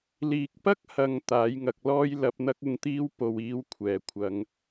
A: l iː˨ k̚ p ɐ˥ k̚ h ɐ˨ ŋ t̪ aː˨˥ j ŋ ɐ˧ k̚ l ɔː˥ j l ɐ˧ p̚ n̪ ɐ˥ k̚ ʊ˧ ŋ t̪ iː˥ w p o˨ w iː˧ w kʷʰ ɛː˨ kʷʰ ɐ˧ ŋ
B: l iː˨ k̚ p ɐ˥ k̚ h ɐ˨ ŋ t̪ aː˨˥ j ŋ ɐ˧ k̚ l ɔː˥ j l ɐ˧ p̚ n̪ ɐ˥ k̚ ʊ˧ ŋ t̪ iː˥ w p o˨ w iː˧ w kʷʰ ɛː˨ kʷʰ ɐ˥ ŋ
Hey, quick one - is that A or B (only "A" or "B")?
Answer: A